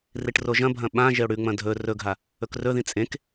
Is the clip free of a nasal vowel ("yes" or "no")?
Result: no